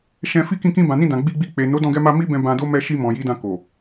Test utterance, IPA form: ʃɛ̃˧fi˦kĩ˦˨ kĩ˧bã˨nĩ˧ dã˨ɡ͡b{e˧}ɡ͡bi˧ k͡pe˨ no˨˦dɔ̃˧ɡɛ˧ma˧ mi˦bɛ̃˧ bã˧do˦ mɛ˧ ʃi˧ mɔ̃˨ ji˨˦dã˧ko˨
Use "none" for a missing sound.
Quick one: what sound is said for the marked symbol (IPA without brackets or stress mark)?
i˧